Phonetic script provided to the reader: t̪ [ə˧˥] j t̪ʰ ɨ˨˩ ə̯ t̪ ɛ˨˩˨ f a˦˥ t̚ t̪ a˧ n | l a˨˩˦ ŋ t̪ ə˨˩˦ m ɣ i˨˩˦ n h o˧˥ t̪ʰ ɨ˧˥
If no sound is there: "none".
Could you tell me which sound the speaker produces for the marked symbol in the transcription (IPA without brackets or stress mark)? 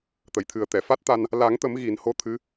ə˨˩˨